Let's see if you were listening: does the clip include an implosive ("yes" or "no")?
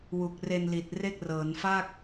no